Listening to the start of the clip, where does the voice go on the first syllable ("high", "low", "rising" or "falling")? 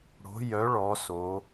rising